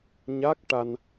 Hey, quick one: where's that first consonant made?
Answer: palate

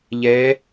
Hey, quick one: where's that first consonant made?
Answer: palate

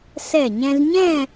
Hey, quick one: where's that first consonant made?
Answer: tongue tip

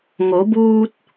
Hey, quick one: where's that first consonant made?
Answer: velum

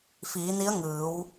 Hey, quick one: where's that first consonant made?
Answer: lips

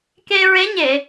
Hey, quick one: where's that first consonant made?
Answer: velum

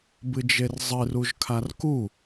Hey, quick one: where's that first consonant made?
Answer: lips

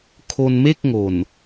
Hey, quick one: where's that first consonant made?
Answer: velum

